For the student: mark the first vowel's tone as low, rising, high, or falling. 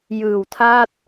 low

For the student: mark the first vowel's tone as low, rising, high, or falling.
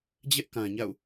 high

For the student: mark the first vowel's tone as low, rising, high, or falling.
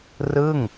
falling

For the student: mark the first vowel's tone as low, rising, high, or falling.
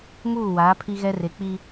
falling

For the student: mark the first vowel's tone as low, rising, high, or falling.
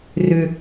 high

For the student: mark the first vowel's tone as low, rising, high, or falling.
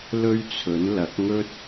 high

